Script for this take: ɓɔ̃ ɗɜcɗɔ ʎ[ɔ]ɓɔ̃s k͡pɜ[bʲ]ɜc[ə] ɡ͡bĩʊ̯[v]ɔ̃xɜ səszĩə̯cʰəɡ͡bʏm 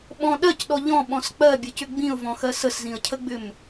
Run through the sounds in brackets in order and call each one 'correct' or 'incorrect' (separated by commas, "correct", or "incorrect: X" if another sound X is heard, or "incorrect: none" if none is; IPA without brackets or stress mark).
incorrect: ɔ̃, correct, incorrect: ʏ, correct